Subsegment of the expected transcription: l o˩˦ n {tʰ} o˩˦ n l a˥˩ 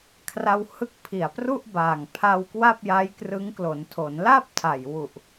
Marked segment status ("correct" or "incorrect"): correct